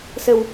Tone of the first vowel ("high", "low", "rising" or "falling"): low